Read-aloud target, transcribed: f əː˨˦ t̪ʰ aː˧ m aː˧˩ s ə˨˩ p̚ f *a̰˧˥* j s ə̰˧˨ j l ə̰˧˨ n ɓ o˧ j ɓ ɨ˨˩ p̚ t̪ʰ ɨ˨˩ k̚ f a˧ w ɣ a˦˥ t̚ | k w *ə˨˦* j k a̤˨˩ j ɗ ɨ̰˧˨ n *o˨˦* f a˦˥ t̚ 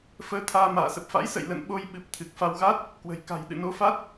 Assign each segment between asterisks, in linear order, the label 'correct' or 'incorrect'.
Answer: correct, incorrect, correct

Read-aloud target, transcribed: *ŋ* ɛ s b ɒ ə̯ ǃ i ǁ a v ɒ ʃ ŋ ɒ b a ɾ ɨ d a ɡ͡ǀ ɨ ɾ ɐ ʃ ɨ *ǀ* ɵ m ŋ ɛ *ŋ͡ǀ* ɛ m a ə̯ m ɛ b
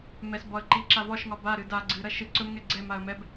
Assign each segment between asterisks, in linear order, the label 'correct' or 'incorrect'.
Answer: incorrect, correct, incorrect

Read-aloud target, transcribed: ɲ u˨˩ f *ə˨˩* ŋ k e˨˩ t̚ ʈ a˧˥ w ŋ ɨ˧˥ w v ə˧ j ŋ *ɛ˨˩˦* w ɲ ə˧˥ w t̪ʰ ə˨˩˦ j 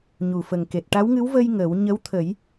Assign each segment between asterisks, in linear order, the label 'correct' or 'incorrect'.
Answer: correct, incorrect

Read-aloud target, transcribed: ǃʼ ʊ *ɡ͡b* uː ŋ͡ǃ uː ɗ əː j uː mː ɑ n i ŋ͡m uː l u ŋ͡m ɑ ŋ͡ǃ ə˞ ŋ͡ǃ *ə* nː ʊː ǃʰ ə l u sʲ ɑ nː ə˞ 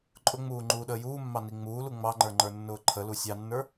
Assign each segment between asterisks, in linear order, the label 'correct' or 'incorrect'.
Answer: incorrect, incorrect

